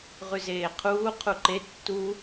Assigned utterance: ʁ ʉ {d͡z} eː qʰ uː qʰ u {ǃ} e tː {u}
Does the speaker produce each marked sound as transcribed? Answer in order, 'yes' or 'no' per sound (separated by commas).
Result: no, yes, yes